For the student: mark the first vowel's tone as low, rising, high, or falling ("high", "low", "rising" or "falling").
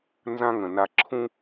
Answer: high